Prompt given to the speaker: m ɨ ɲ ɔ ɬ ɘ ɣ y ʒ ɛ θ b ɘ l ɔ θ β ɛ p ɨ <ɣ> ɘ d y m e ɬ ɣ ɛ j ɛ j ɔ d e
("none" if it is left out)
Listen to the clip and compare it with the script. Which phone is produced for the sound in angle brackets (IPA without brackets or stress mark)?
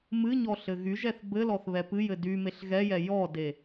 j